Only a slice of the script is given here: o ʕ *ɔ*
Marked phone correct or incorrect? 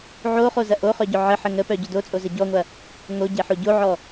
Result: correct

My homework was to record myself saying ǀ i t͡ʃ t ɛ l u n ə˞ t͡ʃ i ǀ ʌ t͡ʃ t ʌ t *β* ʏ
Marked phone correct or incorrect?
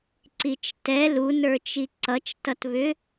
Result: correct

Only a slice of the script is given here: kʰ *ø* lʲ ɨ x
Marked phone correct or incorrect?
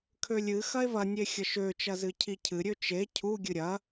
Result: correct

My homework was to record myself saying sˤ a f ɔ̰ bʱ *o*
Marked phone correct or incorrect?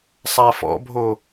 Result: correct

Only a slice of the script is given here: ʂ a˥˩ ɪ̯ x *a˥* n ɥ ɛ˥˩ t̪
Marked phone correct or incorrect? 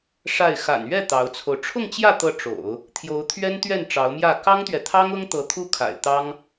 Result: incorrect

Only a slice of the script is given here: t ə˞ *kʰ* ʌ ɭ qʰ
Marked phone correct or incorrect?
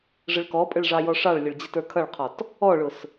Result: correct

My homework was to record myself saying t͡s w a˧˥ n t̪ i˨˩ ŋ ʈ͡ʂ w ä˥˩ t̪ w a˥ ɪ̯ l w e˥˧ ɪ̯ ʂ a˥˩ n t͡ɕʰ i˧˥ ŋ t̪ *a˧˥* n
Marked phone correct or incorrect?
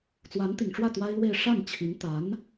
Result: correct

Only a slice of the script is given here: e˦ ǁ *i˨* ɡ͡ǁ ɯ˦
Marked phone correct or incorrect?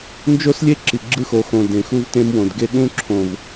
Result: correct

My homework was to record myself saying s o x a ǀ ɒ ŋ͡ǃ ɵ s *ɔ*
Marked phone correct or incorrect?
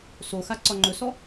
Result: correct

